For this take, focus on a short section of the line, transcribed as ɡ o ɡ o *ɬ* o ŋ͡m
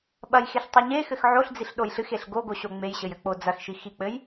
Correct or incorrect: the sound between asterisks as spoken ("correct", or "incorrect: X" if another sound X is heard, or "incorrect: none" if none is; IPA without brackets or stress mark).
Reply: incorrect: ɕ